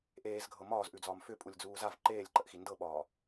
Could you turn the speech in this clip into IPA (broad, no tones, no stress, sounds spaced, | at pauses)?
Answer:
ʔ eː z ɡʱ ɤ m ɒː z ʔ ʉ d͡z ɒː m f ʏ pʼ u lʲ d͡z uː z a v ǃ eː lʲ ǃ ə ʔ x i n d ɤ ɓ ɒː